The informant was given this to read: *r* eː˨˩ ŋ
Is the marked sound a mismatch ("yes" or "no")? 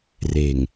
no